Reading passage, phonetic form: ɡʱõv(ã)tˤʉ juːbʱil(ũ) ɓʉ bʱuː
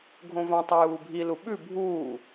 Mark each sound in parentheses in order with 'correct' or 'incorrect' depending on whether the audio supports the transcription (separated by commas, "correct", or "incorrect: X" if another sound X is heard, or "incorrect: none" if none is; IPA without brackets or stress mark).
correct, incorrect: u